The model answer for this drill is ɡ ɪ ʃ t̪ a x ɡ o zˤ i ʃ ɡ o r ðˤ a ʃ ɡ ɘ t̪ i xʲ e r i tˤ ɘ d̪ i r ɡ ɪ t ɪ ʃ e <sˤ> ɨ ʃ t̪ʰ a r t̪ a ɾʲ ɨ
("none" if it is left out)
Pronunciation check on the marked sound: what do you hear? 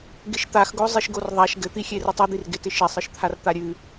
sˤ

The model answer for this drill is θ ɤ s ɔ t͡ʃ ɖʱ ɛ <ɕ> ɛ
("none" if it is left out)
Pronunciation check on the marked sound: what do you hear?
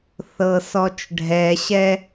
ɕ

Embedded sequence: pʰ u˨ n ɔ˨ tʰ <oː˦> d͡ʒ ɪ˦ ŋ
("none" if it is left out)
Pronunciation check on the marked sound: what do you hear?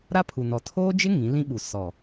oː˦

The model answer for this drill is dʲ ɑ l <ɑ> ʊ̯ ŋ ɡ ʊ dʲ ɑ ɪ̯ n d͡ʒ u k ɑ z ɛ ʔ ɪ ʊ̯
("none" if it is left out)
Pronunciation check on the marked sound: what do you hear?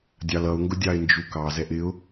ʌ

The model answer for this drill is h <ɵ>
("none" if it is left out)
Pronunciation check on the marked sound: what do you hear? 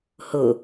o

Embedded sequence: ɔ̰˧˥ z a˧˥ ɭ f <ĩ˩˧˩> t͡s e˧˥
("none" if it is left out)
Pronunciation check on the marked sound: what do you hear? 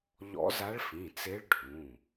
ĩ˩˧˩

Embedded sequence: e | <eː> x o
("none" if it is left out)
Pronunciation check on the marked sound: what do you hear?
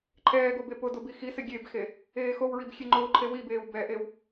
eː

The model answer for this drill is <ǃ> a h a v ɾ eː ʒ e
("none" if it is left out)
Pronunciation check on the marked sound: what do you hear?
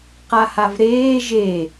q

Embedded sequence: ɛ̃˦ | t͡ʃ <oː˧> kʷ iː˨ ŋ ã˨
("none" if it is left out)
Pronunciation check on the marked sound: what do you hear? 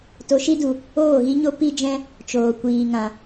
oː˨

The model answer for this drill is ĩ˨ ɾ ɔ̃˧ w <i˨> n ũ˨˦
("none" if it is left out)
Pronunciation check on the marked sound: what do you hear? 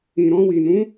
i˨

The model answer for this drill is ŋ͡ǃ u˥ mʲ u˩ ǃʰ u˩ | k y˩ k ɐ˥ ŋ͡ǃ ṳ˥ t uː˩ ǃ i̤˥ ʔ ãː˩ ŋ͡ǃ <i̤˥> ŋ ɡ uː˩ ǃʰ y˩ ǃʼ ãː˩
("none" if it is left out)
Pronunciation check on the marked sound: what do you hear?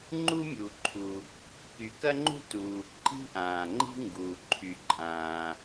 i̤˥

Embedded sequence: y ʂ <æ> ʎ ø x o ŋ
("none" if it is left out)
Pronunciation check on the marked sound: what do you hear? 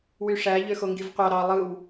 æ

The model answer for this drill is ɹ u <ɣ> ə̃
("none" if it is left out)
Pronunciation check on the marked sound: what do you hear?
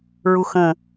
x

